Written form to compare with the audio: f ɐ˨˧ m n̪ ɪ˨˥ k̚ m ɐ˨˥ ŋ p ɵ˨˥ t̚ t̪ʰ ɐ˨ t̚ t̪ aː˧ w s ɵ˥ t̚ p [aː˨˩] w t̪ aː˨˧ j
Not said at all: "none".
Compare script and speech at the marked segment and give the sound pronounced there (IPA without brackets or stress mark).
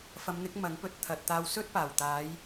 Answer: aː˨˩